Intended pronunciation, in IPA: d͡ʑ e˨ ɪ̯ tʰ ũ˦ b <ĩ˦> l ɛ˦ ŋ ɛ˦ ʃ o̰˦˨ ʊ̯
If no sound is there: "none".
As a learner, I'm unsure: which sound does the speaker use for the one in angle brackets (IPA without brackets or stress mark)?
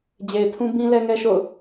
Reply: ĩ˦